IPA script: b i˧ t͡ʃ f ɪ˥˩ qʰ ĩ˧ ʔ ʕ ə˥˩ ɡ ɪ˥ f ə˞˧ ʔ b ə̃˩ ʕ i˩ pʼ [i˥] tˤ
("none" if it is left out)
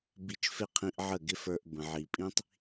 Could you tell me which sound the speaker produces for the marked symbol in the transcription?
ĩ˥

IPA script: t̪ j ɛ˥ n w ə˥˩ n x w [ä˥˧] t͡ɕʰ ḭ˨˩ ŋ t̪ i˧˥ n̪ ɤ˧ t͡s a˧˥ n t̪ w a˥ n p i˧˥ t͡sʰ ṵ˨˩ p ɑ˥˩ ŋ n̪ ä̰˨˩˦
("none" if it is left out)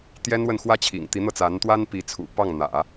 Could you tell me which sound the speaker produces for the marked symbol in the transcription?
ä˥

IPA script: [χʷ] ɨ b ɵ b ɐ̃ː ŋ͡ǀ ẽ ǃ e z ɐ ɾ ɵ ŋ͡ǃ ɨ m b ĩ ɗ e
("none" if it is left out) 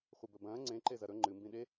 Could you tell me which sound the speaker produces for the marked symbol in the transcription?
χʷ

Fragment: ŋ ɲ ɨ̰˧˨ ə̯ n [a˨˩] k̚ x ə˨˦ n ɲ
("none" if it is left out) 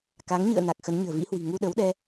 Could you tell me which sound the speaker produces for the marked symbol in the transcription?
a˨˩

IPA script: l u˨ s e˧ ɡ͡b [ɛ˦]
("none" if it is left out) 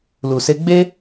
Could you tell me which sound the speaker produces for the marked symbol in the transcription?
e˦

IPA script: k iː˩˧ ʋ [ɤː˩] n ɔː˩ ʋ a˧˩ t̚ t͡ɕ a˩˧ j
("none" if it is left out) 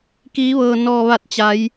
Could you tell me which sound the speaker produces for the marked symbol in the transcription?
ɤː˩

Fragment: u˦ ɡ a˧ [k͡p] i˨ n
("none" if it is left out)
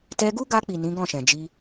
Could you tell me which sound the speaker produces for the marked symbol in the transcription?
k͡p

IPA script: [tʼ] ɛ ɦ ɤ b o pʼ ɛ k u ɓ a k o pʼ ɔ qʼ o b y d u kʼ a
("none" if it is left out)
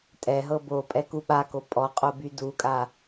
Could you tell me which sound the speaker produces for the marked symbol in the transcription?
tʼ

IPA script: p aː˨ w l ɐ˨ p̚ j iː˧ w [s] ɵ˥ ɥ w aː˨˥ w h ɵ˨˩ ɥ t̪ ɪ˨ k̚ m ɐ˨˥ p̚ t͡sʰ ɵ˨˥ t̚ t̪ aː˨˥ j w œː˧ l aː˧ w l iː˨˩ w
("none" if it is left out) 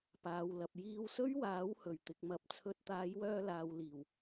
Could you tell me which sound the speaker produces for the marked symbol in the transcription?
s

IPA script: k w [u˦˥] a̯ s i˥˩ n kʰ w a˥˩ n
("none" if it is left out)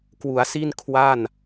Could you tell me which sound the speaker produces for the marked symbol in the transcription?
u˩˦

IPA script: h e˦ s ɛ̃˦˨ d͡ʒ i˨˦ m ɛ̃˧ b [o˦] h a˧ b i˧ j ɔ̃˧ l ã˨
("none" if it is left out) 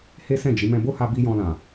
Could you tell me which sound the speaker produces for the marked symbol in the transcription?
o˦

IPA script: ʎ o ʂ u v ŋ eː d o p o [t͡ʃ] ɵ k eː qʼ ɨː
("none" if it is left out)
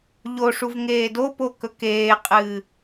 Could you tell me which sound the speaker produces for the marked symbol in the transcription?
k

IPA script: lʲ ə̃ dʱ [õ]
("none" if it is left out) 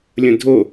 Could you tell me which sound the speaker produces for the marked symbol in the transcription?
o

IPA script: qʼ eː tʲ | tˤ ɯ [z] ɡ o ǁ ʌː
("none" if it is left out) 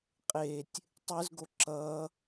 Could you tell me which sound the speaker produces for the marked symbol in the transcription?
z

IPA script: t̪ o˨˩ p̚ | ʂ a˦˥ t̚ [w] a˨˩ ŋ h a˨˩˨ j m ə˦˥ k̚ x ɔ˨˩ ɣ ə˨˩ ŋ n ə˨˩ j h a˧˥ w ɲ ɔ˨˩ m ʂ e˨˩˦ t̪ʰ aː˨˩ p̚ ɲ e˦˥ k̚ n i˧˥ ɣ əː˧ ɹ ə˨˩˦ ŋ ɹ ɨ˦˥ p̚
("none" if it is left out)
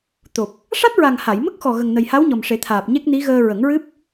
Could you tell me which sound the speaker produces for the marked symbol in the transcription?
ɹ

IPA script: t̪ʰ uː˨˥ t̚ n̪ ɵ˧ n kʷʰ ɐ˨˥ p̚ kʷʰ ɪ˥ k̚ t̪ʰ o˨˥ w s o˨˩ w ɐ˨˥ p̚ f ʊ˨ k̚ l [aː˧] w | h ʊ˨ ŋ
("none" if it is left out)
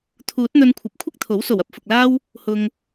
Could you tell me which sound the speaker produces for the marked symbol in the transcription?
aː˥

